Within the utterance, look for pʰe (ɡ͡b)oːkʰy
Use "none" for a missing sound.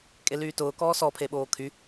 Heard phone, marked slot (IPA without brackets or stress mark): ɓ